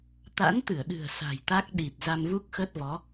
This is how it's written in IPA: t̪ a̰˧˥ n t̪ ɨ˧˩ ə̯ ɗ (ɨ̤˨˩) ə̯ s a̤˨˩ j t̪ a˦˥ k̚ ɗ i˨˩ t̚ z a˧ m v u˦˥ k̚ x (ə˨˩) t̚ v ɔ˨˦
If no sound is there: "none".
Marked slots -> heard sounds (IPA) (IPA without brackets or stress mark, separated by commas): ɨ̤˨˩, ə˦˥